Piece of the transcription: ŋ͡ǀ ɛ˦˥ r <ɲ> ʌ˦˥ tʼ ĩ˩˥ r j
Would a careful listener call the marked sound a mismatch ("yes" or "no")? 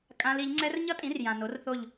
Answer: no